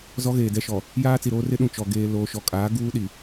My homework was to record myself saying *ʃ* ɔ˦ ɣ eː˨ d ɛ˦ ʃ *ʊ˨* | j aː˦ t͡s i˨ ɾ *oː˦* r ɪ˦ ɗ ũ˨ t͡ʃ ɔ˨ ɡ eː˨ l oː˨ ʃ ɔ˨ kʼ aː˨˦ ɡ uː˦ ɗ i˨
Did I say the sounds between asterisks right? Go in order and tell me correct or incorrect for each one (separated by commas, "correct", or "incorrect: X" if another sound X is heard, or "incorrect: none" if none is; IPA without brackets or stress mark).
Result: incorrect: z, incorrect: ɔ˨, correct